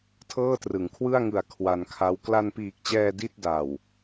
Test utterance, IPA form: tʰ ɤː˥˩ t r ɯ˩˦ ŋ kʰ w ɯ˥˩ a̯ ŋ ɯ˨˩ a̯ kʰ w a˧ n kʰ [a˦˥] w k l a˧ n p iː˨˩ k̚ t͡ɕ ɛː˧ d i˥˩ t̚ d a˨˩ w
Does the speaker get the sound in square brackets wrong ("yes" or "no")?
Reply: no